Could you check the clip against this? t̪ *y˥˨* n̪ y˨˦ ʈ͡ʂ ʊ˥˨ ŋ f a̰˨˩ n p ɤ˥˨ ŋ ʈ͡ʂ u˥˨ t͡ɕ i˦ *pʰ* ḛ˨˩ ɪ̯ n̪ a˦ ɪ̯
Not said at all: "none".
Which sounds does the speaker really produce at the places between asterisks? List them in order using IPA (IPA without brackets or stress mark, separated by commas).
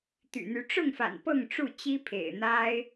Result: y̰˨˩, pʰ